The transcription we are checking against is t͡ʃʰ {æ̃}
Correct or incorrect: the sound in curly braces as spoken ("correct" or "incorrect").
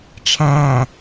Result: correct